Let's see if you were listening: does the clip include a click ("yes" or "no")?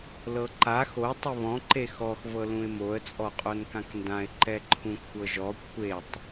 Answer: yes